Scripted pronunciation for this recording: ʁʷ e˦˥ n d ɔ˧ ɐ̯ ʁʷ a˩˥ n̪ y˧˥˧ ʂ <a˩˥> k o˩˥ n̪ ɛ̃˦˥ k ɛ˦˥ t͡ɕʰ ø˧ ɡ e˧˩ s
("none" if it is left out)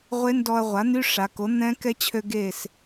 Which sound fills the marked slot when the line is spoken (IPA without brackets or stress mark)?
a˩˧